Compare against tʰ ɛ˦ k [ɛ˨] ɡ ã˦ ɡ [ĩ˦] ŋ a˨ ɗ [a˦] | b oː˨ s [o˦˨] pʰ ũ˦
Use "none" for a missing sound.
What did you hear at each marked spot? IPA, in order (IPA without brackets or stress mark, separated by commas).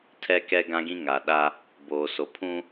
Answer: ɛ˦, ĩ˦, a˦, o˨